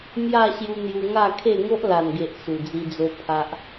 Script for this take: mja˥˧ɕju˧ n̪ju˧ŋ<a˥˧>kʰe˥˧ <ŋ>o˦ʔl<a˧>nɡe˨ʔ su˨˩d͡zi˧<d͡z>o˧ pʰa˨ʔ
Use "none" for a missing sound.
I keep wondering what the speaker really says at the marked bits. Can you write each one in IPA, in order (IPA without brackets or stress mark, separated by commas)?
a˥˧, ŋ, a˨˩, d͡z